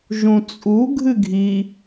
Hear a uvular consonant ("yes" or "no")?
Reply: no